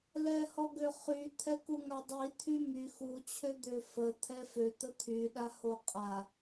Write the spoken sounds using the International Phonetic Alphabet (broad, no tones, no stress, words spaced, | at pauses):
lɛhɔɡøχy t̪ʰɛkuŋadˤi t̪ʰymy xu t͡ɕʰød̪øfə t̪ʰɛfø t̪ət̪ʰy ɗahoqʼa